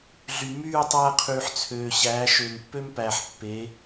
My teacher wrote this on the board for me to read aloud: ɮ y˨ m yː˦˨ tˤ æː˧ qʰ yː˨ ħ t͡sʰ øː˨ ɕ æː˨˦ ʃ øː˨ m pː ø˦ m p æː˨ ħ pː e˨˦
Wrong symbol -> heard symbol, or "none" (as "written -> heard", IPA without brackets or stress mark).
none